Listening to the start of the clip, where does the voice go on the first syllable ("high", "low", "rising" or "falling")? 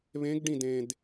rising